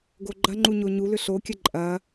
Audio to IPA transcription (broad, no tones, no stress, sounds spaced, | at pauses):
ɡ o ɡ͡ǃ ɐ ŋ͡ǃ u ɲ o ɲ u l ʏ ɬ o kʲ ə ǃʼ ɐ